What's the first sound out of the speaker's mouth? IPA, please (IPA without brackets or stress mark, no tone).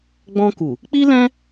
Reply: ɡ͡b